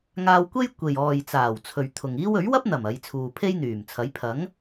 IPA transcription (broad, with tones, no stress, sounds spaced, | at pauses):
ŋ aː˧ w kʷ e˥ j kʷ e˨ j ɔː˨ j t͡s aː˨˩ w t͡sʰ ɵ˨ ɥ t̪ʰ ʊ˨ ŋ iː˥ w ɵ˨˥ ɥ w ɐ˥ p̚ n̪ ɐ˨˩ m ɐ˨˧ j t͡sʰ uː˨ pʰ e˥ j n̪ yː˨˩ m t͡sʰ ɐ˨˥ j pʰ ɐ˨˥ ŋ